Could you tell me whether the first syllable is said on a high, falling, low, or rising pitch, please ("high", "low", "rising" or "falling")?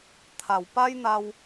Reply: low